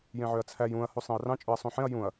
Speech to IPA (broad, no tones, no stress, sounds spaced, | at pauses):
j ẽ ʕ ø ɐ̯ t͡sʰ æ j ũ ɐ̯ h u sˤ ẽ ɐ̯ r ɑ̃ t͡ʃʼ ø ɐ̯ sˤ ũ ħ ẽ ɐ̯ j ũ ɐ̯